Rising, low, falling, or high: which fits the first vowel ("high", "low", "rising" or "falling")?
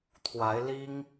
rising